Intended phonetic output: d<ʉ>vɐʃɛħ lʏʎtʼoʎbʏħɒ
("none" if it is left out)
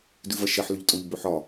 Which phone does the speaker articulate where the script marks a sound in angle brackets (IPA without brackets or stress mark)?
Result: ʉ